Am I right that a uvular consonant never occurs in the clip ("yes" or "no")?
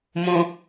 yes